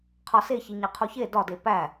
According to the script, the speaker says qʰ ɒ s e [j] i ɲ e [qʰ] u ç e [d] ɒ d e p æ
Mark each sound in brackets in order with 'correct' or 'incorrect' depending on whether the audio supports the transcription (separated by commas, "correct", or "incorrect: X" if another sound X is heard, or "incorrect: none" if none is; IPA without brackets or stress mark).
incorrect: ç, correct, correct